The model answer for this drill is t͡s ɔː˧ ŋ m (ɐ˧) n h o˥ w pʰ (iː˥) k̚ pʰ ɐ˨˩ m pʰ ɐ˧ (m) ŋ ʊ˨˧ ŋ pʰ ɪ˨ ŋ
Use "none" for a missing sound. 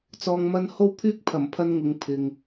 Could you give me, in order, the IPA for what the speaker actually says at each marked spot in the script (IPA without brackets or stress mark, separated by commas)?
ɐ˥, yː˥, n